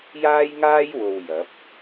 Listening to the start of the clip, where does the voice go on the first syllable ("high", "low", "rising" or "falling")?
high